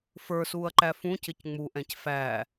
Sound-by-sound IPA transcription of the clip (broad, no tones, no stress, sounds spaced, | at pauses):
f ə˞ s uː ɐ̯ ǃ æ f ũ c ɪ c ŋ͡m u ʔ ɛ̃ c f æ